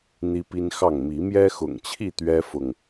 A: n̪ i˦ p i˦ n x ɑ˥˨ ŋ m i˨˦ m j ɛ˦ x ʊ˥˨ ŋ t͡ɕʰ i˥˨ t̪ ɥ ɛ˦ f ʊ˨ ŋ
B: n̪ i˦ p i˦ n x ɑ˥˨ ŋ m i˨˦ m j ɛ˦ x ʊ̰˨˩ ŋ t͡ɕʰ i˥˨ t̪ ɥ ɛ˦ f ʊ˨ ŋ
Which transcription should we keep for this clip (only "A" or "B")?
B